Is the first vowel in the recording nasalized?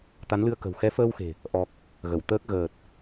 no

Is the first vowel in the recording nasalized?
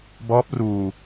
no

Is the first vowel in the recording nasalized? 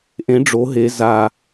yes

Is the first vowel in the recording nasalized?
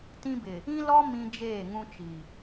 yes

